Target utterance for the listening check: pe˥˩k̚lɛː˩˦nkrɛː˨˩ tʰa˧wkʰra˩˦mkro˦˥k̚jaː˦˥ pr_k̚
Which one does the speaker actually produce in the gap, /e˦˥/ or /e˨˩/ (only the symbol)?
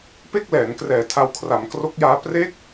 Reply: e˦˥